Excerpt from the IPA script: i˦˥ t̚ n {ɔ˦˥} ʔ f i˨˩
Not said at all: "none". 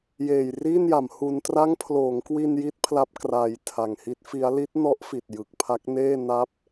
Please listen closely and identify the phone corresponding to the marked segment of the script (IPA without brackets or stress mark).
ɔ˦˥